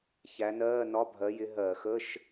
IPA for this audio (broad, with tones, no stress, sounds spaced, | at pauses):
ç æ˨˦ n ɜː˧˥˧ n ɒ˧˥˧ bʱ ɜ˨˦ j ɪ˨˦ ɦ ɜ˧˩˧ x ə˧˥˧ ʃ